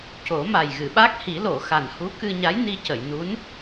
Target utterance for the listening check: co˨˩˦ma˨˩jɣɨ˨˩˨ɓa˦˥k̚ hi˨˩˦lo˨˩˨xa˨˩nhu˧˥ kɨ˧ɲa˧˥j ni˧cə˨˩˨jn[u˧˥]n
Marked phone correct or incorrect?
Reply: correct